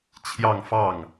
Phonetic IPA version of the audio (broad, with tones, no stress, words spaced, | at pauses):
t͡ɕʰjɑ˥˧ŋfɑ˥˩ŋ